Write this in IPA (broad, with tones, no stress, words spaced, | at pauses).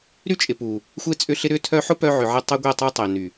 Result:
ɾy˦t͡ʃʼɪ˨ pu˨ | xʷe˦t͡sʼʏ˦ɬɪ˦ ɾʏ˦tʰœ˦ ħʊ˦ pœ˦ʕʏ˨ʕɪ˦ tˤe˦ɡʷe˦˨tˤu˦tˤe˨ ny˨